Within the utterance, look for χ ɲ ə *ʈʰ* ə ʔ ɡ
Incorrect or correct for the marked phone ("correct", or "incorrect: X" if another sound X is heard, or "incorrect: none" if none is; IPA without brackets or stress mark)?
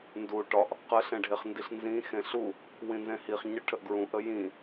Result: correct